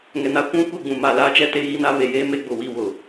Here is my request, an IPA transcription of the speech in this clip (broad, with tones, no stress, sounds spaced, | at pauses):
ŋ ɛ˨ n a˦ kʷ ũ˦ kʷ i˦˨ ɡ͡b ũ˨ m a˨ l aː˦ t͡ʃ ɛ˦ t e˦ ɣ i˦ n a˦ β e˨ j eː˦ m e˦ ɡ͡b ʊ˨ w i˦˨ w ʊ˨